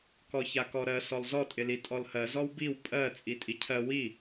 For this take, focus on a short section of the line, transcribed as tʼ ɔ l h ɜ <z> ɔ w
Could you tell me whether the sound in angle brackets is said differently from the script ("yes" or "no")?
no